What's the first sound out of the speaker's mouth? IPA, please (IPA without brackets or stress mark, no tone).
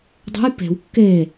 dˤ